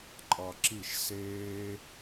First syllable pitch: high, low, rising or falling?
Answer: low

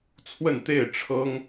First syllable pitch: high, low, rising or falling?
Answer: falling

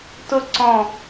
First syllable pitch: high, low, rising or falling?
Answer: falling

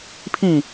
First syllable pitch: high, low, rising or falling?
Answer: falling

